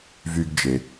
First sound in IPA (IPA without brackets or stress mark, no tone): v